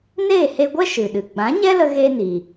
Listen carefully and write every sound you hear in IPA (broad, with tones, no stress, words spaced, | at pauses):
neː˦˨he˧ɡʷɛ˦ ʃɨ˨ɗɨ˨ ɡ͡bã˨˦ɲɛ˦lə˧ ɣe˦ni˨